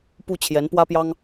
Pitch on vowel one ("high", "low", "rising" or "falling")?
falling